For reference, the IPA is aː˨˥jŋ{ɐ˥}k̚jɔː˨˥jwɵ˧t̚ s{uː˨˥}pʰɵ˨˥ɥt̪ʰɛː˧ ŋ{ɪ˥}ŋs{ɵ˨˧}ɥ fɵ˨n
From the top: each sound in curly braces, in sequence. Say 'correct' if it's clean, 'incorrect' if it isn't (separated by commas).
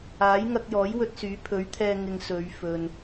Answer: incorrect, incorrect, incorrect, correct